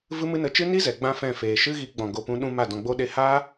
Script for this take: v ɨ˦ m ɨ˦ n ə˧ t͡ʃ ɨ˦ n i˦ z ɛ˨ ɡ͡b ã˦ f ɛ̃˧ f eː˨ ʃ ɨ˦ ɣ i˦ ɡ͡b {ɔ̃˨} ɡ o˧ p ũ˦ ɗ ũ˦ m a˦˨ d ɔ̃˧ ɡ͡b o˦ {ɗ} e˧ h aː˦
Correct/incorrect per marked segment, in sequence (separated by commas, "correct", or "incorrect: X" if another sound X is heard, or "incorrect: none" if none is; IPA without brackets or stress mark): incorrect: ɔ̃˧, correct